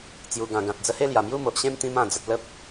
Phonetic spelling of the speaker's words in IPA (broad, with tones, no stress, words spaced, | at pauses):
t͡sju˨˩ɡã˨˩ ɡã˨t̚d͡zə˧he˥˧ lja˨˩mju˥˧mo˨ʔɕẽ˥˧m t̪ĩ˧mã˨˩d͡zə˨t̚ lə˦p̚